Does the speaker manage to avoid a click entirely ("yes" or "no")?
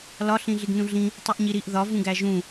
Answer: yes